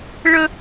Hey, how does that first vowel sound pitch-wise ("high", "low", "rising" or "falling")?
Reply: high